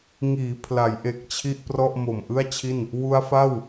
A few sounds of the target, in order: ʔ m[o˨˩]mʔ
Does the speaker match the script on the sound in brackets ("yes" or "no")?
yes